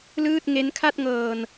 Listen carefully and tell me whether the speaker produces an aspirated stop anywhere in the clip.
yes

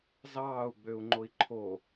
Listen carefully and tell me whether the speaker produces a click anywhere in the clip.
yes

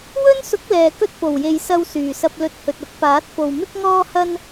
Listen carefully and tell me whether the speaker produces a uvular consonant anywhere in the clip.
no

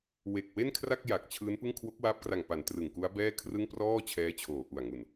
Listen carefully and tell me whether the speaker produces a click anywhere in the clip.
no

